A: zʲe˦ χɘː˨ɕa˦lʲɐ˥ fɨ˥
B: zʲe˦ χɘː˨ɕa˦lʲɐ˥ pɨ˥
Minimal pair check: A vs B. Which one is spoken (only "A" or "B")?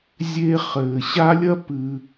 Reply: B